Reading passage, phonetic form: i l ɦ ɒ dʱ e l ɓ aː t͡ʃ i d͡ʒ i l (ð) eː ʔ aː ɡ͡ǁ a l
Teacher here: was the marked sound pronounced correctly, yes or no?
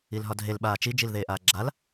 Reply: yes